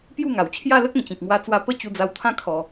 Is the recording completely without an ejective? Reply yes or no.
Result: yes